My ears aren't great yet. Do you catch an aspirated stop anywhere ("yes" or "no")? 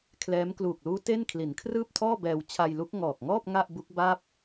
yes